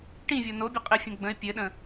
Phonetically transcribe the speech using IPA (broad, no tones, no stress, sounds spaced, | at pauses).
ʈ ĩ vʲ o n o bʲ ɘ qʼ ɘ fʲ õ ɡ͡b ə̃ ɪ̯ pʲ ɘ ɗ ə̃